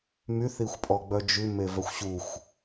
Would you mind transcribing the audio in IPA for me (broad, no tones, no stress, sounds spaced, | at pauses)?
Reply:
m y θ i xʷ pʼ ɔ ɡ͡b œ d͡ʒ ʉ m e v œ xʷ ɕ u xʷ